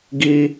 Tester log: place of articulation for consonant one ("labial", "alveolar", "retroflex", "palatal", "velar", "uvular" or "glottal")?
velar